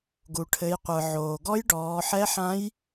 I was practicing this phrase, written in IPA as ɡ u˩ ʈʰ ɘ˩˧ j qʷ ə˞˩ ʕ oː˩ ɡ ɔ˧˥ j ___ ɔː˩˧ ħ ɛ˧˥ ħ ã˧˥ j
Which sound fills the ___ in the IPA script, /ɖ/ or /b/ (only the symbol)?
ɖ